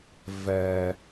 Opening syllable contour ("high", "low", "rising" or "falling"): low